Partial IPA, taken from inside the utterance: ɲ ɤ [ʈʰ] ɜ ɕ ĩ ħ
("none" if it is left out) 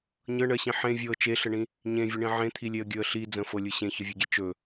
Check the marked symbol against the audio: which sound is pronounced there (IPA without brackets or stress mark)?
ɳ